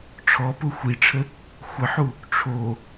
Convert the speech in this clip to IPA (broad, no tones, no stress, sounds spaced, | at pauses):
ʈ͡ʂʰ ɔ p ʊ xʷ i ʈ͡ʂʰ ə | xʷ ə ħ u | ʈ͡ʂʰ o